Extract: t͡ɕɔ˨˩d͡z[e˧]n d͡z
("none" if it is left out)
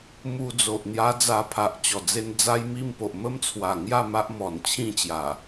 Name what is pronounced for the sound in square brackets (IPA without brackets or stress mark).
e˧